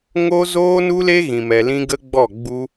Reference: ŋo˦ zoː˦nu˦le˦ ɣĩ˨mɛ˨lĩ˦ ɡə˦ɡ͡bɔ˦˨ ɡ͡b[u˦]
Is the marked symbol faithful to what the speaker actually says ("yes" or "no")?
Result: yes